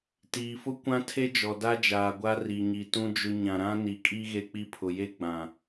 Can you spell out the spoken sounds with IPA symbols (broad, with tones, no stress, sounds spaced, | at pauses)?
t iː˨ f ʊ˦ kʷ ã˦ tʰ e˦ d͡ʒ ɔ˨ d a˦ d͡ʒ aː˨ ɡʷ a˦ r i˨ ɲ i˨ t ũ˦ d͡ʒ ʊ˦ ɲ ã˨ ɾ ã˦ n i˨ kʼ i˦ ɣ e˦ k͡p i˦ pʰ ʊ˨ j e˦ ɡ͡b ã˨